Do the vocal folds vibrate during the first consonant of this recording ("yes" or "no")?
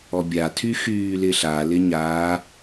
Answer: yes